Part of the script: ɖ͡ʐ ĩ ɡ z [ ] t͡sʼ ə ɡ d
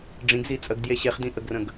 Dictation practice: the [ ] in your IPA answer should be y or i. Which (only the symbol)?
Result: i